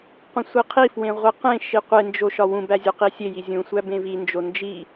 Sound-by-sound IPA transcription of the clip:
qʷẽsʷiqʰifwẽ ʁʷiqẽʃi qʷend͡ʒo ʃɒwũbæ zʲuqisʲeji zʲũsʷæ bẽvind͡ʒo nd͡ʒi

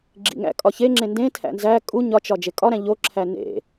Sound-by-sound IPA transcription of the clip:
ɡ͡ǁḭŋæ̰kʼɒ çe ŋ͡ǁẽndẽtʰæ̰ nzæ kʼu ɲɒt͡ʃɒ d͡ʒekʼɒɾæ̃ ʎoǁʰæ nḛ

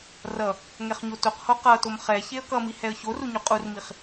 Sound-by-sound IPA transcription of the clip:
rʌ | ŋɛχɲotoqho qʌtom χɛçeə̯ kʌmi hɛə̯çoru ɲuqʼurmiχ

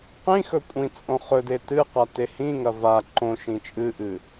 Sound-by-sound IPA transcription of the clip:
qĩxɵ kʷʼĩt͡sʼõ χɵde tɨqa tehĩŋɐ va ǃõ ʃĩt͡ʃʼɨʔɨ

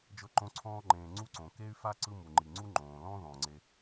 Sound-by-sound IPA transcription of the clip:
d͡ʒɤ˦ǃõ˦ǀʰɔ̃ː˥ŋ͡ǃẽː˨ ŋ͡ǀu˦ǀõ˩ ke˥y̯fa˥ǀɯ˦ mu˩ŋ͡ǃi˩ŋ͡ǀu˥ ŋ͡ǃõː˩lɔ̃˥ ðɔ̃˩ŋ͡ǀe˨

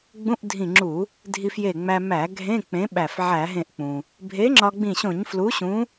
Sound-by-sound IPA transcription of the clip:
ɡ͡bũ˧˥˧ʔdʱĩ˧˩ŋ͡ǁu˧˩˧ | dʱi˧fje˧˩ŋ͡mæ˧ mæ˧˩˧ ɡʱẽ˧˥˧ k͡pẽ˨˥ɓæ˧˩f ʕæ˧˩˧ɦẽ˧˩ʔk͡pũ˩ | bʱe˨˥ŋ͡ǁɒ˧ɡ͡bĩ˧˩ɕõ˧˩˧ɲ flu˨˥ɕũ˨˥

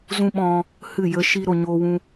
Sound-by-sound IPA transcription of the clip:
zũ˦ɓɔ̃˧ | hɨ˦˨jə˦ʃi˦ ɾo˨ɲoː˧wũ˧

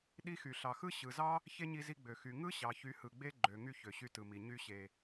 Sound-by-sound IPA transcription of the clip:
ɗi˦xy˨ ɬɑ˨xɯ˦ ɕɯ˨zɑ˦ | çe˦ɲi˧zi˧ ɡ͡bø˨ xy˨ ŋɯ˦ ɕɑ˨çy˨˦hɯ˨ɡ͡be˦ ɡ͡ǃø˨ŋy˧ çø˨ɕy˧tɯ˨mi˨ ɲy˧ɕe˨

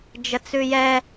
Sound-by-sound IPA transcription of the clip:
d͡ʒət͡sʉjɛ

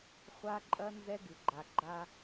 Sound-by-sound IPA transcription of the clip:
χʷa˦ ǃʼɐ˦ nzɛ˦ɡɨ˨ɡ͡ǃa˨ ɡ͡ǃa˦

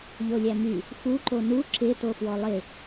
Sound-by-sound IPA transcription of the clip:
ʎolʲæmy | fuǃo nu ǁɪ tofwɔlˠɪ

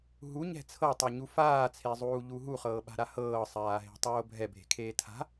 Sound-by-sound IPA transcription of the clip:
ɦu ɲɛ̤t͡sʰɤtˤoɲu faːt͡sʰezˤuːʎu ɦuχɤːɓa̤ɾa hɤːsˤaːɦe̤ tˤoːbʱɛ bʱe̤kʰeːtʰa̤

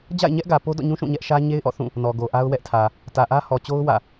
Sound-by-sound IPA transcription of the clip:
d͡ʑa̰˦˨ɪ̯ɲɛ˦ʔɡä˨ po˦dɔ̰˦˨ɲũ˦ ʃũ˦˨ɲɛ˦ʔʃä˦ ɲe˦ɪ̯ʔɔ̰˦˨ θũ˦˨ | nɔ˨ɡo˨ ʔa˦ʊ̯wɛ˦ʔtʰä˨ | tä˨ʔä˦hɔ˨t͡ɕo˦ʊ̯ wä̰˦˨

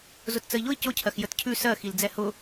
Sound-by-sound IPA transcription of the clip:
zʊtt͡səi̯ʎʊi̯ cʊcʰɜx jətcʰʉ sɜxil d͡zɛhʊ

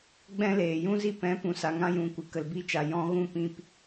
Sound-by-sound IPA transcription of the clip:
ɡ͡bɛ̃˦leː˨ jũ˦zi˦pɛ̃˨˦ pũ˨sa˨ ŋã˦jũ˨ kʷɨ˨ kə˨lbi˧t͡ʃa˨ jɔ̃˧ɣũ˦˨pĩ˧p

